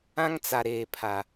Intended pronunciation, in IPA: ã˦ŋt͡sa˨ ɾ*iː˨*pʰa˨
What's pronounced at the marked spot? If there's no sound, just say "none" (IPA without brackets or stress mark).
eː˨